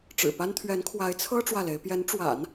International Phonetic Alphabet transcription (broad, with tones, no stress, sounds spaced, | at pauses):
ʈ͡ʂ ɻ̩˨˩ p a˥ n t̪ʰ ɥ ɛ˧˥ n kʰ w a˧˥ ɪ̯ t͡sʰ ɤ˥ ʈ͡ʂ w ä˥˩ l e˧˥ ɪ̯ p j ɛ˧˥ n ʈ͡ʂ w a̰˨˩˦ n